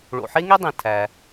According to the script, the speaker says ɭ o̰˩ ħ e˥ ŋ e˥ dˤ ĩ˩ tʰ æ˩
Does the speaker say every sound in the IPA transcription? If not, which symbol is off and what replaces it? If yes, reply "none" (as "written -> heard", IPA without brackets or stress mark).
none